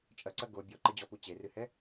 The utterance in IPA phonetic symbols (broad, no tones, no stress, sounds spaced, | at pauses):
t͡ʃʼ ɐ ǀ ɐ ɡ o bʲ ɔ ǃ ɘ d͡ʑ ɔ p u t͡ɕ e r ɨ h ɛ